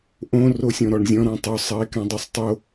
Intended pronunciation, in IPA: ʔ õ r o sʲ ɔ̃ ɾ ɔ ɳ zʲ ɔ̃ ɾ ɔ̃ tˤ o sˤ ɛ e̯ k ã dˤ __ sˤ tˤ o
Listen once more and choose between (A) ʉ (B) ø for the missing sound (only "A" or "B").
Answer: A